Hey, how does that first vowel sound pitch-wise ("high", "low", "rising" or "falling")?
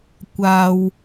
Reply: low